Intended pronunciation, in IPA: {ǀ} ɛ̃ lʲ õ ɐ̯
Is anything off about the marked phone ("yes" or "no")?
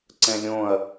no